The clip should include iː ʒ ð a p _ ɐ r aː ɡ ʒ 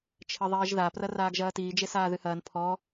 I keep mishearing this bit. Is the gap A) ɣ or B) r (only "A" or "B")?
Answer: B